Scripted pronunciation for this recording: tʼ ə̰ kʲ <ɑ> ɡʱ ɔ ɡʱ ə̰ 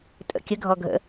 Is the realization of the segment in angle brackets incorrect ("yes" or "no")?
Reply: yes